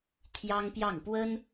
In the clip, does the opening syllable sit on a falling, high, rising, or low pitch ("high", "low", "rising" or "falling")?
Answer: high